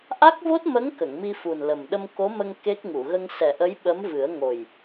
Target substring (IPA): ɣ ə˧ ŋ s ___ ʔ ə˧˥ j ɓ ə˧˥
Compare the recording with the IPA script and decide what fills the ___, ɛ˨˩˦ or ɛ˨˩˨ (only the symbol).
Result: ɛ˨˩˦